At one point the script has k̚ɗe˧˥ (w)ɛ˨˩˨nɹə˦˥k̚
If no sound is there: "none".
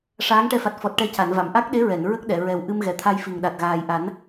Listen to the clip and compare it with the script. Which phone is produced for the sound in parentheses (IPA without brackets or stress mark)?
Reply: ɹ